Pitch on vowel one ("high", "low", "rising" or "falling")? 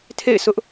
falling